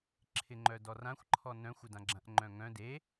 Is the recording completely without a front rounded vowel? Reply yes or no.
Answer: no